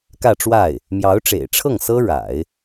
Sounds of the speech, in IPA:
k ä˥˧ ʈ͡ʂ w a˥˩ ɪ̯ | m j ɑ˧˥ ʊ̯ ʈ͡ʂ ḛ˨˩ ɪ̯ ʈ͡ʂʰ ɤ˥˩ ŋ s ɤ˥ ɻ a̰˨˩˦ ɪ̯

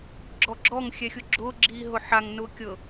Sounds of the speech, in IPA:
ɡ͡ǁ ɔ ɡ͡ǁ ɔ ŋ xʲ ɛ xʲ ʊ ɡ͡ǁ ʊː ɡ͡ǁ iː ɦ ʊ ħ a ŋ n ʊː kʲ ɤ

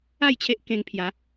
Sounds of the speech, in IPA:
a˥˧ j t͡ɕʰ e˦ ʔ k ẽ˧ ŋ pʰ j a˨˦

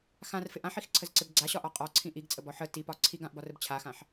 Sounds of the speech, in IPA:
x ã r f ɪ ʔ ã ħ i x ǀʰ ə z ǀ ɪ b ɡ͡ǀ a ɕ ɒ ʔ ɒ qʼ ɒ ǀʰ ĩ ʔ i ɡ t͡sʼ ə b ɒ ħ ə t i p ɒ ǀʰ i ɡ ã ʔ b ɒ r ə b t͡ɕʰ a x ã ħ

